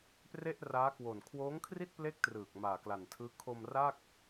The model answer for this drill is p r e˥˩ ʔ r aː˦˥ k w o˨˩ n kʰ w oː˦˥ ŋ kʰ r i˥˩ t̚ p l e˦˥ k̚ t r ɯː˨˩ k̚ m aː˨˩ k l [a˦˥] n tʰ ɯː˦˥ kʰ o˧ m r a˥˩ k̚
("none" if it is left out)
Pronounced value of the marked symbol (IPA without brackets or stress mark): a˨˩